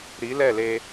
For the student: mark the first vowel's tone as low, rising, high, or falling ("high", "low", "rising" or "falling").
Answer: rising